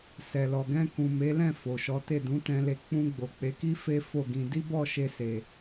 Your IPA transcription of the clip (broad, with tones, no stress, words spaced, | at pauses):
sɛ˨lɔ˨ ɡɛ̃˧kũ˨ me˨˦lɛ̃˦˨ fo˨ʃɔ˨˦te˦˨ dũ˨˦tɛ̃˧le˧ k͡pũ˧ɡ͡bo˨k͡pe˨˦ki˦ fe˦ fo˦˨ɡĩ˧ di˦bɔ˦˨ʃe˧se˨